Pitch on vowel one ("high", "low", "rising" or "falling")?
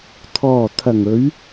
low